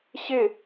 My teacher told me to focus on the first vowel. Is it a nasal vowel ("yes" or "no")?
no